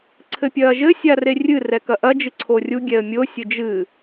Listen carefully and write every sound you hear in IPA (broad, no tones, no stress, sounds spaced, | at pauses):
ǀʰ ɘ pʲ ɐː ʒ ɘ sʲ a r e rʲ ɨ r ɛ k ɐ ʔ ɐ d͡ʒ ɨ ǀʰ o rʲ u ɡʲ ɛ ə̯ mʲ o sʲ ɘ d͡ʒ ɨ